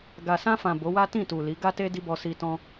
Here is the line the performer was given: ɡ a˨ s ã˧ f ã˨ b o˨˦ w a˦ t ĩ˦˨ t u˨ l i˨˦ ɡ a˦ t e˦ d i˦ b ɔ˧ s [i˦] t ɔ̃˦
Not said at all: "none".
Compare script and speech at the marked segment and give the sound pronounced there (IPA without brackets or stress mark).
i˧